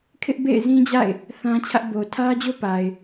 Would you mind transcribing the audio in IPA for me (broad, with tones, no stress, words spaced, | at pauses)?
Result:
kʰɪ˦ʔbḛ˦˨ɪ̯zĩ˦d͡ʑa̰˦˨ɪ̯ | θã˦t͡ɕʰä˦ʔ bo˨tʰä˦d͡ʑo˦pa˨ɪ̯